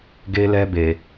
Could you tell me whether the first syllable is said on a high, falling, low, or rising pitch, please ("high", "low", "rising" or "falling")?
high